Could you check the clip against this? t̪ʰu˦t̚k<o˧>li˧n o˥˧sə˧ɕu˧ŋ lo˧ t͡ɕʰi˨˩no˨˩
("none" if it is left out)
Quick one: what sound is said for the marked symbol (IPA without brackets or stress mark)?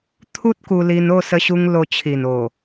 u˧